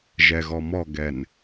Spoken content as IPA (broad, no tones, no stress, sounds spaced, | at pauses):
ʒ ɛ ɣ ɔ m ɔ ɡ ɛ n